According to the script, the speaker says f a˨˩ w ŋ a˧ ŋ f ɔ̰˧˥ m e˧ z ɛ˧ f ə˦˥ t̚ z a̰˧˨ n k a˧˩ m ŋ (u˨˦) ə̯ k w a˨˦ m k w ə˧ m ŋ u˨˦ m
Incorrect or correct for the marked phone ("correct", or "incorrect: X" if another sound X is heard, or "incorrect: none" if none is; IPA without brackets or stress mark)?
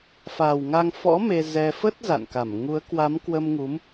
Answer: correct